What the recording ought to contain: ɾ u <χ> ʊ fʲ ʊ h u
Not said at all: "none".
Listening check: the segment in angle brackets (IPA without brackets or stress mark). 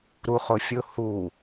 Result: χ